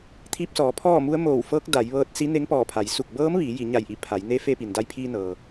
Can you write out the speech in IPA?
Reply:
t̪ʰ iː˧ p̚ s ɔː˩˧ pʰ ɔː˥˨ m u˧˥ ə̯ m oː˧˩ w f ɤː˧˥ k̚ d a˩˧ j ʋ ɤː˧ t̚ s i˧˥ n e˧˥ ŋ p ɔː˧˩ pʰ a˩˧ j s u˧˩ k̚ b ɤː˧˥ m ʋ iː˩˧ j i˩˧ ɲ a˧˩ j ʔ i˧˩ pʰ a˩˧ j n e˧˥ f e˧ p i˩ n d a˧ j pʰ iː˧ n ɤː˩

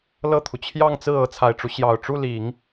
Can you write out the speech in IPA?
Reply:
l ɤ˥˩ t̪ʰ u˩ t͡ɕʰ j ɑ˥˧ ŋ t͡s ɹ̩˥˩ ɤ˥ t͡sʰ a˨˩ ɪ̯ ʈ͡ʂ u˦ ɕ j ɑ˨˩ ʊ̯ ʈ͡ʂ u˥˩ l i˨˩˦ ŋ

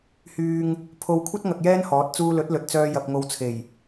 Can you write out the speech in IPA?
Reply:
h yː˧ ŋ | pʰ o˨˧ w kʷʰ ɐ˥ t̚ ŋ ɐ˧ k̚ j ɛː˥ n h ɔː˨˥ t̚ t͡s uː˧ l ɵ˨˥ t̚ l ɵ˨ t̚ t͡s œː˧ j ɐ˧ p̚ ŋ o˧ w t͡sʰ e˨˩ j

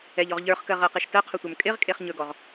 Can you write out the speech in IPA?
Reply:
ɛ ʎ ɔ ʁ ʎ ə˞ χ k ɜ ʁ ɜ q e ʃ t ɜ qʰ ɵ tʷ ə˞ m kʼ ɪ ʁ kʼ e χ ɲ ɵ ɡ ɔ ʁ

